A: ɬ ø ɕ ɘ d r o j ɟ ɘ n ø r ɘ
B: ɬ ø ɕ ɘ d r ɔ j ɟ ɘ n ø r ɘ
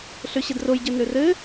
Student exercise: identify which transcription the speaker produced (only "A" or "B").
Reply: A